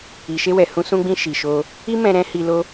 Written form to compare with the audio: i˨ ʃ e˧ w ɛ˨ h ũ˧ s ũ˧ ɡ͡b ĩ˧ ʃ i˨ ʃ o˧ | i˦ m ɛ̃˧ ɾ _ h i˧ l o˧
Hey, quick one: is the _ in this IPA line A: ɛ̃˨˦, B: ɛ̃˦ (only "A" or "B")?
B